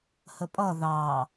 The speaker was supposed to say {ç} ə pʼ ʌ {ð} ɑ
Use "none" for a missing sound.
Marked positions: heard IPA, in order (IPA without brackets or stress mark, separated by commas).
h, ð